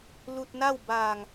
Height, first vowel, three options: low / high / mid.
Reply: high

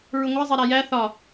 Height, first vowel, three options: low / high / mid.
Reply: high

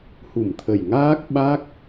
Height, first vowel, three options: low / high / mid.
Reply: high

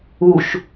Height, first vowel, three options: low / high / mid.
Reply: high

